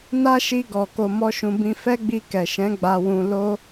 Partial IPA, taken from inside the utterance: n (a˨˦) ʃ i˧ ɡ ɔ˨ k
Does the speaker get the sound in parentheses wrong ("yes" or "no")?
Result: yes